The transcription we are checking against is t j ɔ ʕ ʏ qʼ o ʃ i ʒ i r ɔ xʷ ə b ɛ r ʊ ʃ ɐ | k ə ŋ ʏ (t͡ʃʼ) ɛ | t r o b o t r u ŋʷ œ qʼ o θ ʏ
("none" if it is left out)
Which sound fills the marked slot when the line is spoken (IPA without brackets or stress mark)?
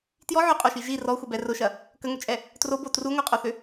t͡ʃʼ